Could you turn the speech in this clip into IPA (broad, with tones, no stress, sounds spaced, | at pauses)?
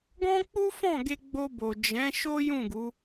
ɡ ɔ̃˦ k͡p u˦ f ɔ̃˦˨ ɡ e˧ ɡ͡b o˧ b o˨ d͡ʒ ɛ̃˨˦ ʃ o˦ j ũ˦˨ ɡ u˨˦